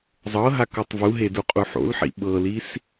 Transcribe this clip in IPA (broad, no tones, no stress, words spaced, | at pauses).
zˤɤɦakɤtˤ vuɦeduqʼu ħo̰lħḭ ɓɤlis